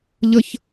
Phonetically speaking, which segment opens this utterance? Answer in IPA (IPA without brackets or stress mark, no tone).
ʎ